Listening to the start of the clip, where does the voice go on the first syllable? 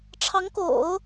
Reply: rising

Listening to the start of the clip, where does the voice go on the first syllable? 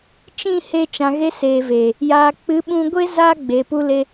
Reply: falling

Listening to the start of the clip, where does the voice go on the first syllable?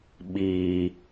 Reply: low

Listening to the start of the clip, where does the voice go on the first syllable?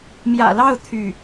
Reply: low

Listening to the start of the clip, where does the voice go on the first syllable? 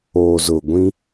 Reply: low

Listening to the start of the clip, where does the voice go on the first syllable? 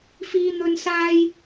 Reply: high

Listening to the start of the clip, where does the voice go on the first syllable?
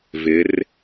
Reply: rising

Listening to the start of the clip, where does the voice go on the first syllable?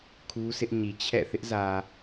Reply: high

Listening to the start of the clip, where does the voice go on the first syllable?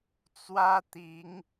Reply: high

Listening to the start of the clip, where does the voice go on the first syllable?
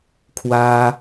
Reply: high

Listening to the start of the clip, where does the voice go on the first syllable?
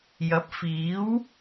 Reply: rising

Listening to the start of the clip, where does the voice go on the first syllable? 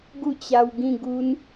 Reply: falling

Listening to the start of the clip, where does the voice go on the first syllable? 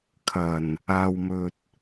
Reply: low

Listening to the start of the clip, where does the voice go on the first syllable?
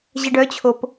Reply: low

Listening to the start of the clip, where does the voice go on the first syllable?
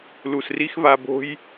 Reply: low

